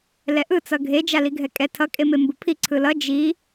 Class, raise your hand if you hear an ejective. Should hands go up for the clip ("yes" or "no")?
yes